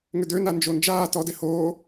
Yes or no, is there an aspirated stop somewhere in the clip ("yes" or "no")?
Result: no